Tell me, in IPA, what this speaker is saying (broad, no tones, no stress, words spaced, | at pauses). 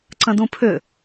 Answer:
ǀə̃dũpʰʏ